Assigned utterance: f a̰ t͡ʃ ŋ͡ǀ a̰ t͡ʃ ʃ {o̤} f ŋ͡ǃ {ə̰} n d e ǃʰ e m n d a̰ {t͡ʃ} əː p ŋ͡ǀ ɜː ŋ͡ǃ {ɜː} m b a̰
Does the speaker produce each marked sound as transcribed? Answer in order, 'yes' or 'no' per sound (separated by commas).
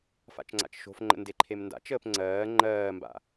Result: yes, yes, yes, yes